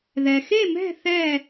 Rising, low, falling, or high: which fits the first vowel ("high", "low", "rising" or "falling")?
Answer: low